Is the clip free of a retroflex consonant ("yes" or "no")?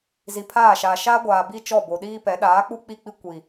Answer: yes